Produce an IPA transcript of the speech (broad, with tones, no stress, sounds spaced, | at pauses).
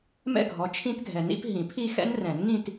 m ɛ̰˥˧ ɡʱ ɔ˨˦ t͡ʃʰ ĩ˦˥ t ɡʱ ɛ˨ n ḭ˦˥ p ɦ ĩ˨˩˦ pʰ i˥˧ x ɛ̰˦˥ n r ɛ̃˨˩˦ n ŋ ĩ˥˧ t